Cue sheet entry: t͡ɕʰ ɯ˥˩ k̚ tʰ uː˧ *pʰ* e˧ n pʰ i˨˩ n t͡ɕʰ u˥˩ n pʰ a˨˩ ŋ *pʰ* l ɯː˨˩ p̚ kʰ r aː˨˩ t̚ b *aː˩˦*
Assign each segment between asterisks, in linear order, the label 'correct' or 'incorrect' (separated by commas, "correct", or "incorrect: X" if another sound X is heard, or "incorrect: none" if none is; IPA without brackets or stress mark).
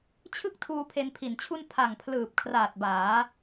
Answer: correct, correct, correct